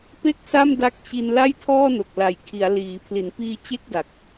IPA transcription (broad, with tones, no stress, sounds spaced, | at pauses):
p e˥˩ k̚ s a˥˩ m d a˦˥ k̚ t͡ɕ i˧ n l a˥˩ j tʰ ɔː˥˩ n o˨˩ k̚ l a˨˩ j kʰ i˩˦ a̯ l iː˩˦ pʰ l i˩˦ n p iː˧ t͡ɕ e˥˩ k̚ d a˨˩ k̚